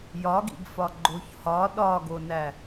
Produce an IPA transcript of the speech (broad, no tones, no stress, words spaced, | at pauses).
jɒɡḭɡfɒ ɡ͡ǃoçhɒ ɗɒɡonæ